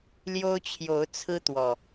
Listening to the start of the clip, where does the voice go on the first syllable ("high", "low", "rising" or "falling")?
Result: high